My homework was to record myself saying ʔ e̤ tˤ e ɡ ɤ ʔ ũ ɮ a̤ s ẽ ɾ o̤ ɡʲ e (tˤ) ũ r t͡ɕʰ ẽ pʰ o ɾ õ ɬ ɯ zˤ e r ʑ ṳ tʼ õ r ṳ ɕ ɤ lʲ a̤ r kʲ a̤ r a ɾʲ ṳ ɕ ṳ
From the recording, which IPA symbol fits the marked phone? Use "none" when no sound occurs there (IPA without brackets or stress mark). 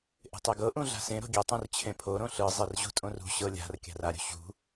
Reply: tˤ